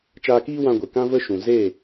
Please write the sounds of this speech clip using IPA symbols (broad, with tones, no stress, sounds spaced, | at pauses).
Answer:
t͡ʃ aː˧ k iː˦ w ã˧ ɡʷ e˨ k ã˦ v ə˦ ʃ ũ˨ z e˦˨